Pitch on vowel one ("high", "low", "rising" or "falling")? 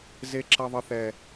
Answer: high